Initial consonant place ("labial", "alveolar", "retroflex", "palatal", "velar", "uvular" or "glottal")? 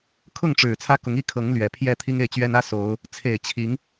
velar